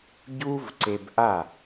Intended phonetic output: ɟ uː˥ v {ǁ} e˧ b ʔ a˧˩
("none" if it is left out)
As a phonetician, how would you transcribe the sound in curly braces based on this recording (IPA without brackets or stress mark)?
ǀ